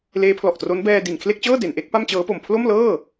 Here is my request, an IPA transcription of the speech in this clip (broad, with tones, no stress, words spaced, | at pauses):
leː˦˥pʰlɔ˨˩ʔtro˦˥n bɛː˧di˨˩nkʰle˥˩k̚t͡ɕɤː˥˩ de˩˦n ʔe˦˥k̚pa˥˩mt͡ɕɤː˦˥po˨˩m pʰlo˥˩mlɤː˥˩